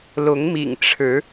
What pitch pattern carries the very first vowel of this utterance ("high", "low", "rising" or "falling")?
rising